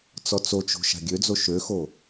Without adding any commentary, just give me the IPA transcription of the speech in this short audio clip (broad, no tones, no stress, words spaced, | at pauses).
t͡sɔt͡sot͡ʃo̤ ʃa̤ɡʲød͡zo ʃøxo